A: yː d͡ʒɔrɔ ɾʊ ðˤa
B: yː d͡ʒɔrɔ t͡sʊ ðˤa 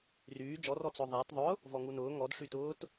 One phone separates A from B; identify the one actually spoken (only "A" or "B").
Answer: B